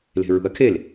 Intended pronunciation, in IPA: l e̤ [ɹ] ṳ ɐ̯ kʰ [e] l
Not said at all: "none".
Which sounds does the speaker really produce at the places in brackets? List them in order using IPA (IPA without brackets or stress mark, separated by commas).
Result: ɹ, e